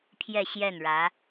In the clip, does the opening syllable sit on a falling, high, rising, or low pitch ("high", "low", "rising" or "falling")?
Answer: falling